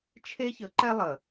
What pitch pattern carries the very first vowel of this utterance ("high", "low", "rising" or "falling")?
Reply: high